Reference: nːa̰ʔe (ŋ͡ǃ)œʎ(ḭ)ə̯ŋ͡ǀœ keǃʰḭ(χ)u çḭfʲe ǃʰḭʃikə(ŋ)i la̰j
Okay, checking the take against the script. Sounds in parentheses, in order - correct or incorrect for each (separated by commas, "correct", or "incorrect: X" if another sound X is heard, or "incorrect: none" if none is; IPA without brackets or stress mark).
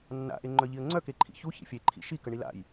correct, incorrect: i, incorrect: ç, incorrect: ɳ